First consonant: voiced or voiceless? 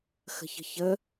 voiceless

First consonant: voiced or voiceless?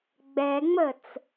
voiced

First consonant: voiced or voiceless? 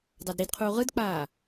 voiced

